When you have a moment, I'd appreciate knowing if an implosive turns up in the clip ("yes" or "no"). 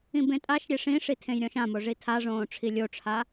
no